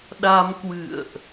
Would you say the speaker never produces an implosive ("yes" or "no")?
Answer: no